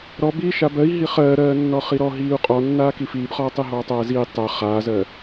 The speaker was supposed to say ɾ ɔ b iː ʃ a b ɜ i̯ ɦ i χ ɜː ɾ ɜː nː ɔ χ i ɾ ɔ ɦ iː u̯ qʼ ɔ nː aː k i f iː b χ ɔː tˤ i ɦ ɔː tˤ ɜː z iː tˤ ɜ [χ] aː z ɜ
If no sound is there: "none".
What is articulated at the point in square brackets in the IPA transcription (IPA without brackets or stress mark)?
χ